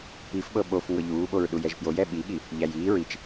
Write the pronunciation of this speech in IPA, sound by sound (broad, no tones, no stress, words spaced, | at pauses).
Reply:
pifɓɤ ɓof ŋɤʎuːɓoɹ ɗujɛʒpjoj ɛɓiɠi | ʎæjiː ɹit͡ʃ